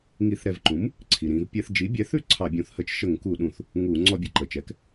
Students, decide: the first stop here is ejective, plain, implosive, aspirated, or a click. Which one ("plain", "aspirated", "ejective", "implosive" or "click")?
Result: click